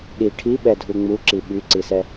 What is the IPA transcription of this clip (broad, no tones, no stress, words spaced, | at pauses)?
ɗi ʈʰiɓɛdʱu ŋ͡muǁi ɓyǀisɛ